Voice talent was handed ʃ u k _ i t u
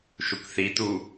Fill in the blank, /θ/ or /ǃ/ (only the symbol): θ